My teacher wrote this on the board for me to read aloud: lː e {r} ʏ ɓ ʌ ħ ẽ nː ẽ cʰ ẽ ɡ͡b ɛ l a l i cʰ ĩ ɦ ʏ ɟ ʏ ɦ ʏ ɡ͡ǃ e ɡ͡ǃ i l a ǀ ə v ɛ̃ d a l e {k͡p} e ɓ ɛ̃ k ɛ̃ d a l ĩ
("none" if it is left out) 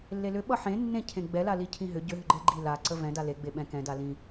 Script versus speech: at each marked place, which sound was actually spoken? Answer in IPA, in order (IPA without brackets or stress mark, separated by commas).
l, ɡ͡b